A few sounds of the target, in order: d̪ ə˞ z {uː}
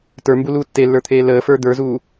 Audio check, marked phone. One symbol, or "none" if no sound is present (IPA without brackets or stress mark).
uː